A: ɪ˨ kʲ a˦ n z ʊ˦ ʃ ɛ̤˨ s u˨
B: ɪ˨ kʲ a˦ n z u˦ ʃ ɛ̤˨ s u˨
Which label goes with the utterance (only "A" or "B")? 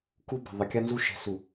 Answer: B